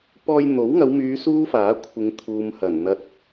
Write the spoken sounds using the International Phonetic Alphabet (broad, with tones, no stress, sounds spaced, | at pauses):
p ɔː˧ j n̪ o˨˥ w ŋ ɐ˨˧ w m yː˨˧ s uː˥ f aː˨˥ kʷʰ ɪ˨˧ ŋ t̪ʰ uː˨ m h ɐ˨˩ n n̪ ɐ˧ t̚